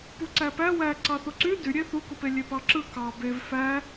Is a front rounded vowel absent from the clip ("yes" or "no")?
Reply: no